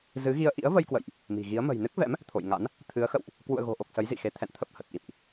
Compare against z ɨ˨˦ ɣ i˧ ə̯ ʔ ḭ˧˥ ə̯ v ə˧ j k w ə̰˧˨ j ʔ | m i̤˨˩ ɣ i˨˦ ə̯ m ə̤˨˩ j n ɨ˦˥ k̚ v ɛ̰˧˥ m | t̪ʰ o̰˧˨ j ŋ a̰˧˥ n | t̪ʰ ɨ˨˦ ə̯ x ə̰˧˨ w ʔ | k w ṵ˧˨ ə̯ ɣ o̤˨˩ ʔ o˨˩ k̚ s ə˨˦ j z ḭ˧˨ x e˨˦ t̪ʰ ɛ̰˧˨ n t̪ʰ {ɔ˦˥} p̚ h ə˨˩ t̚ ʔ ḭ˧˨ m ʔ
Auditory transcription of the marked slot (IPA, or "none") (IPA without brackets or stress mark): ə˦˥